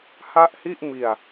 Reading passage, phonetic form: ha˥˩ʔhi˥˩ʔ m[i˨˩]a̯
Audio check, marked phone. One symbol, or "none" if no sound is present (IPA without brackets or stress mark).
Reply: i˨˩